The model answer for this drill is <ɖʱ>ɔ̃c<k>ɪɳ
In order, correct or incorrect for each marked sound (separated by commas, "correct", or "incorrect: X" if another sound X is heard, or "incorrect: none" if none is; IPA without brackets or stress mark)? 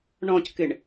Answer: incorrect: ɳ, correct